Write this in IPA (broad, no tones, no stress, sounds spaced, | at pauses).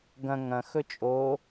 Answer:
ɡ ɐ̃ ŋ ɐ̃ x ɵ t͡ʃʼ o